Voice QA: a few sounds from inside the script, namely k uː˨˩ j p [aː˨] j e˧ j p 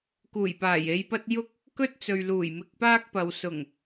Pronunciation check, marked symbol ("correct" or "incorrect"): incorrect